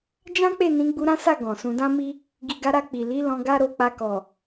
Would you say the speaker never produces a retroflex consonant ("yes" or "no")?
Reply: yes